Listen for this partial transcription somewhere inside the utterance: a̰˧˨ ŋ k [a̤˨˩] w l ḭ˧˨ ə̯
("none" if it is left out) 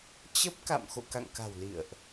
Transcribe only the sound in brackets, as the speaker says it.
a̤˨˩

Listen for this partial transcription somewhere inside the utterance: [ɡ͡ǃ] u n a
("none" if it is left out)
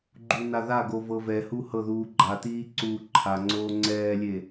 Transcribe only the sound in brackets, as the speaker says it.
ɡ͡ǃ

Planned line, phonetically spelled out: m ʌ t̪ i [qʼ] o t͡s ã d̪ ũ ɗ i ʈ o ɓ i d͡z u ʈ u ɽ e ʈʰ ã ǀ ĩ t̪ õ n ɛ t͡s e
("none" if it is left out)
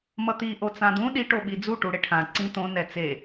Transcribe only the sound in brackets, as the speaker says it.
ʔ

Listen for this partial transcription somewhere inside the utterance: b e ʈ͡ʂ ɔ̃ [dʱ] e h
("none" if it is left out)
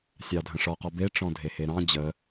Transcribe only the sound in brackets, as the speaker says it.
dʱ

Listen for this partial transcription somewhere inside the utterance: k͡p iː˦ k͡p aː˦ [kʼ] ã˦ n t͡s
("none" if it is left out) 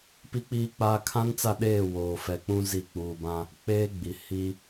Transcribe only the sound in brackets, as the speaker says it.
kʰ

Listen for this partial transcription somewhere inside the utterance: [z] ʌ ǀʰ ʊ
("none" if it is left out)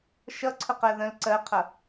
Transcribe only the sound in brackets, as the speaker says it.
ʃ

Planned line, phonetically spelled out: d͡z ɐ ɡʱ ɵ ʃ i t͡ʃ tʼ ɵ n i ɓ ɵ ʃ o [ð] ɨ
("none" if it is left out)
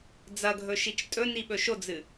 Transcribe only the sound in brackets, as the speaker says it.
d͡z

